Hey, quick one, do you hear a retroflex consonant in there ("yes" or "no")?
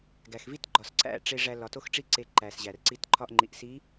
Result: yes